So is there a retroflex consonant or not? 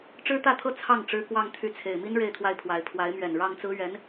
yes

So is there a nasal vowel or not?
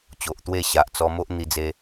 no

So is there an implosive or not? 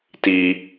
no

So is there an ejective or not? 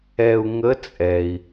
yes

